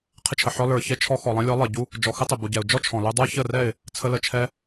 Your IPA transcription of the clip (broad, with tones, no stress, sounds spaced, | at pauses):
qʰ ɪ˧ t͡ʃʰ ə˨ ħ ɔ˧ l ə˞˨ ç ɛ˧ t͡ʃʰ ɔ˧ x ɔ˨ lˠ ɛ̃˧ lʲ ɔ˨˦ lˠ ɪ˨ ɟ u˧ | d͡ʒ ɔ˨ x ɪ˦ tˤ ɪ˨ b u˨ ɟ ɛ˨ ʊ̯ d͡ʒ ɔ˦ t͡ʃʰ ɔ̃˨ l u˧ dˤ ə˞˦ ç ə˦˨ r ɛ˦˨ ɪ̯ | t͡sʰ ə˧ l ə˨ t͡ʃʰ ɛ˧